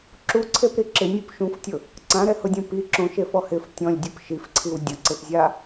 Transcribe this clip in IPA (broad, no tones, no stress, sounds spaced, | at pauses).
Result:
ǁ u ǀʰ e p ɾ i ǁ ɪ nʲ o p ʃ ũ f tʲ ʊ | ǀ ã ɾ ɛ h ʊ dʲ ũ p i ǁ õ ʃ e f ɔ h ɪ f tʲ ɔ̃ lʲ dʲ ʊ p ʃ i f ǀʰ i w dʲ ʊ ǀ e p zʲ a